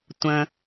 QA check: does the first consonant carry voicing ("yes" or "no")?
no